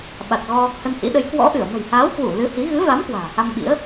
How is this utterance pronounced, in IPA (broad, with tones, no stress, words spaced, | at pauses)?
ɓa˨˩t̚ɣɔ˧ | hə˧nhḭ˧˥ɗə˨˦j kwɔ̰˧˥ʔɨ˧˩ə̯ mə̤˨˩jhaː˨˦wkwu˧˩ lɨ˨˦hi˨˦ ɣɨ˨˦va˨˦m kwa̤ː˨˩ ha˧mɓḭ˧˥ə̯